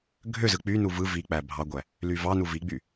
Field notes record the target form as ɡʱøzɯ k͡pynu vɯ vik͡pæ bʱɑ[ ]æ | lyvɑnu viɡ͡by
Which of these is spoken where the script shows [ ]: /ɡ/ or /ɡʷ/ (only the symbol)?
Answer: ɡʷ